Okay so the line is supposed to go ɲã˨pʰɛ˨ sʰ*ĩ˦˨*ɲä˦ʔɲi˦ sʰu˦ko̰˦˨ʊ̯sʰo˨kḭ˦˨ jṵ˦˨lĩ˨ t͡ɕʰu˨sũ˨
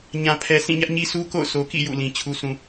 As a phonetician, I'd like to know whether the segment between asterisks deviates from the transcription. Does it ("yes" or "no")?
no